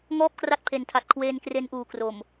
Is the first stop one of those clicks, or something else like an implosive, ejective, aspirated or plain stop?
plain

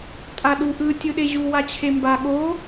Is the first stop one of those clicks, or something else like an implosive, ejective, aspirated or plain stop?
ejective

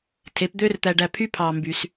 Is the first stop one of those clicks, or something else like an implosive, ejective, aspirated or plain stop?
aspirated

